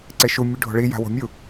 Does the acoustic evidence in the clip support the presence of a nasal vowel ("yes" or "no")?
no